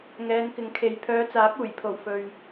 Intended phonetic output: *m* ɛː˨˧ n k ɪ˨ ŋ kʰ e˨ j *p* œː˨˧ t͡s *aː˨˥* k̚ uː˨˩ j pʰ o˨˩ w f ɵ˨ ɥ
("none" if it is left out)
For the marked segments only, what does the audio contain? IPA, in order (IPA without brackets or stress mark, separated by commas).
ŋ, pʰ, aː˨˥